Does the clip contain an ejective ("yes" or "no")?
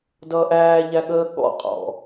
yes